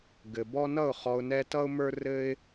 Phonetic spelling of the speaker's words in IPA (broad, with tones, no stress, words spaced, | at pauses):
ɡɘ˨bɔ˦ nʌ˦˨ʊ̯ χɔ˧ʊ̯nɛ˦ tʌ˦ʊ̯mə˞˦rɘ˦ɪ̯